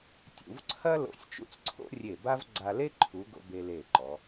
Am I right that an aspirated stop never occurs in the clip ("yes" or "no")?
no